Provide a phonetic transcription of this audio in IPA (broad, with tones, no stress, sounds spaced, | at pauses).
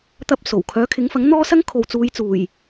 t̪ ɐ˧ p̚ s o˨˩ w kʰ œː˨˥ kʰ ɪ˨˥ ŋ f ɐ˨˥ ŋ n̪ ɔː˥ s ɐ˥ ŋ kʰ o˨ w t͡s uː˨˧ j t͡s uː˨˩ j